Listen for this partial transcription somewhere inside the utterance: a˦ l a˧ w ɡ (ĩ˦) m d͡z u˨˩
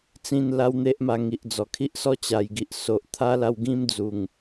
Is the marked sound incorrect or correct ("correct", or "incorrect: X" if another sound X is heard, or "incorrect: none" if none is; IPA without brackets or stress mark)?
correct